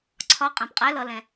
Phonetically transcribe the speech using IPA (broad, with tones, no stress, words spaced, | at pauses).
ǀʰɒ˧˥˧ qʼɛ̃˩˧˩pqʼɛ˧˥˧ lʌ˩˧˩ lɛ̃˩˧